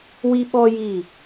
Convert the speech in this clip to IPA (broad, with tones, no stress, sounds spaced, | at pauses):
w i˦ ɓ ɔ˦ j i˦˨